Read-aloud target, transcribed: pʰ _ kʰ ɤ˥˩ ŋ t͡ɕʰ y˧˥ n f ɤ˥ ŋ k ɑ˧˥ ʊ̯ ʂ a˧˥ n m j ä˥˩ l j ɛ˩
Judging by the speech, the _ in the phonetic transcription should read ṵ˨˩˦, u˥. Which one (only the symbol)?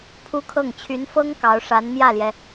u˥